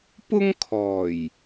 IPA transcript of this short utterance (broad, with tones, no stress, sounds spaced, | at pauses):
p ʊ˥ ŋ kʰ ɔː˨˩ j